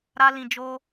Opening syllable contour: high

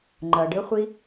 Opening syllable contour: low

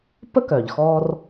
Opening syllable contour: high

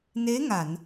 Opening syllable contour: rising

